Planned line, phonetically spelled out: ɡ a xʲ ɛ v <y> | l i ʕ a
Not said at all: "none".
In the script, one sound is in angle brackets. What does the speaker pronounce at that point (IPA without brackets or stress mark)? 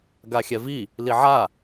i